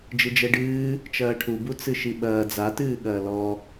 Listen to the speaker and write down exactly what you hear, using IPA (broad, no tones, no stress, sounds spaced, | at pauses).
d͡ʒ ɨ d͡ʒ ɛ ɖ ɨː | t͡ʃ ɐː ʈʰ u b u t͡s ɨ ʃ i ɓ ɐː d͡z a t ɨː ɠ ɐː l ɔ